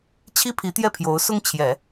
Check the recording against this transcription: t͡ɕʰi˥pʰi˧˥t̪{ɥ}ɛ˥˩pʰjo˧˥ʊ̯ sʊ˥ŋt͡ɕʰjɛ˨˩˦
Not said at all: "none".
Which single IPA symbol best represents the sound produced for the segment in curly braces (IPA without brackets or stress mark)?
j